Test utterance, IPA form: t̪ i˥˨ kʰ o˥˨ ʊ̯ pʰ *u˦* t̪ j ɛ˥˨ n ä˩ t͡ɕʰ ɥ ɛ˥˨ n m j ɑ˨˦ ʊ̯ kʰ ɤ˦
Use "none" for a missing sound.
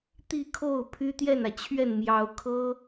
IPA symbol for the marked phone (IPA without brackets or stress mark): y˦